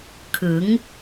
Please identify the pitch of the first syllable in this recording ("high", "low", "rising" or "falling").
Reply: rising